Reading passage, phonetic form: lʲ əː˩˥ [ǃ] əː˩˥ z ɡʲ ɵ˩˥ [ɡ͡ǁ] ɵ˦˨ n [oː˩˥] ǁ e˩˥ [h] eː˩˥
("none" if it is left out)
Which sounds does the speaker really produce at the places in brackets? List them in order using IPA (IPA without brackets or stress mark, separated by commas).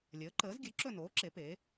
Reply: ǃ, ǁ, oː˩˥, p